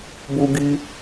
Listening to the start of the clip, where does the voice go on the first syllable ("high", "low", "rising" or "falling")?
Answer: high